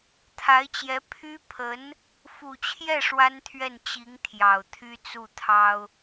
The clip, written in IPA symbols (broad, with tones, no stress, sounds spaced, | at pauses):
t̪ʰ a˧˥ ɪ̯ t͡ɕ j ɛ˧˥ pʰ y˥ pʰ ə˧˥ n | f u˨˩ t͡ɕʰ j ɛ˥˩ ʂ w a˥ n t̪ʰ ɥ ɛ˥˩ n t͡ɕ i˧˥ ŋ t̪ʰ j ɑ˨˩ ʊ̯ t̪ʰ y˥ t͡s u˥˩ t̪ʰ ɑ˥ ʊ̯